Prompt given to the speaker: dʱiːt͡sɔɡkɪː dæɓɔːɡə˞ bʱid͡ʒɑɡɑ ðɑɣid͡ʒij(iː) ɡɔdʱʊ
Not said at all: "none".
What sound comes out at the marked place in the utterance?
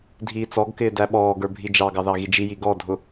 i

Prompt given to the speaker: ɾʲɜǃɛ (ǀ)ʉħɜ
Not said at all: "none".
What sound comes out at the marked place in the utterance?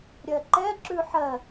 ǁ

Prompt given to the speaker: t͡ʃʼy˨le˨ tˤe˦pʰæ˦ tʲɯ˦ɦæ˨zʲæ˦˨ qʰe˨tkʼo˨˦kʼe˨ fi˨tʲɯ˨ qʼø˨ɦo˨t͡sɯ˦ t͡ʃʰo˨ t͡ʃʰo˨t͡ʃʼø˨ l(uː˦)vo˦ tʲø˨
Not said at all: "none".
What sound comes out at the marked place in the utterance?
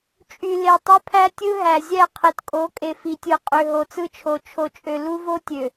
u˦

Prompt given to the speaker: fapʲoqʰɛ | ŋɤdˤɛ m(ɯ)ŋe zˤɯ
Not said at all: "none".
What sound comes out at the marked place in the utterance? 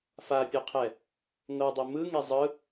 ɯ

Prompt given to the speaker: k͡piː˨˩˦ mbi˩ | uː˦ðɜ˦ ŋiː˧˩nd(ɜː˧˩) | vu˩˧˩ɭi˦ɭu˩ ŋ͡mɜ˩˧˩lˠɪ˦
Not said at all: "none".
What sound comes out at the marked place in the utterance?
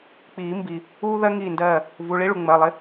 ɜː˧˩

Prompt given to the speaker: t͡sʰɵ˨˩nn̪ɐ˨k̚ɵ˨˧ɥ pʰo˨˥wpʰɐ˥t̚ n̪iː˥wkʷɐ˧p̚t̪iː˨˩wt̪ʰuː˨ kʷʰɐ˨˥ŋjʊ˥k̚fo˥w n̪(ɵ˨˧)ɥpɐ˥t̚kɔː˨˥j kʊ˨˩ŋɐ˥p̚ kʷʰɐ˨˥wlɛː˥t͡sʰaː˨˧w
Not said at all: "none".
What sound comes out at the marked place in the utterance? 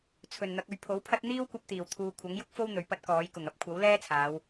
ɵ˨˧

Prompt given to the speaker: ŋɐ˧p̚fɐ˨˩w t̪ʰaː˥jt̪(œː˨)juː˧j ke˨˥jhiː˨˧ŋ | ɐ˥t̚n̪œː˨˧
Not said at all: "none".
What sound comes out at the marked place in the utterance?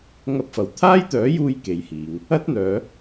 œː˨˥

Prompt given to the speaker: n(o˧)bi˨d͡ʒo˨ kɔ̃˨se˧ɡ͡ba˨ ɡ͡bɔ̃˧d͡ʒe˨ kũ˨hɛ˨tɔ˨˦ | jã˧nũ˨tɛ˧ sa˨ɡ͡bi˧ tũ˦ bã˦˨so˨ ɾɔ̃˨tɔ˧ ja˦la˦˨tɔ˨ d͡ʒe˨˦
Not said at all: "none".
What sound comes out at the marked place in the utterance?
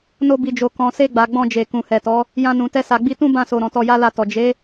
o˧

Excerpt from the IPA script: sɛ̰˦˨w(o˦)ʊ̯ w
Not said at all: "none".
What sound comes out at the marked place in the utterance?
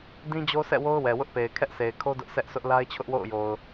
o˦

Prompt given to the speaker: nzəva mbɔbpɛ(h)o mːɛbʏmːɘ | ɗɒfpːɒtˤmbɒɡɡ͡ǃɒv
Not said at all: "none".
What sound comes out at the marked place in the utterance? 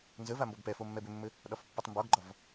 f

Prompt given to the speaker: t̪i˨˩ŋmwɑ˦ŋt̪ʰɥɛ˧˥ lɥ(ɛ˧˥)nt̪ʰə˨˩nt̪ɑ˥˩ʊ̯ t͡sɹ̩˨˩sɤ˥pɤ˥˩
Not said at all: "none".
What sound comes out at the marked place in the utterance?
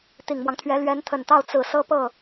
ɛ˧˥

